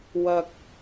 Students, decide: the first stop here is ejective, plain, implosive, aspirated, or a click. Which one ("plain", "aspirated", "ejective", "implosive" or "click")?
plain